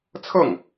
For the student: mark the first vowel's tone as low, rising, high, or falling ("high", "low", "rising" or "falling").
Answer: falling